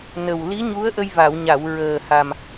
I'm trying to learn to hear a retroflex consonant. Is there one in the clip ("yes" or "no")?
no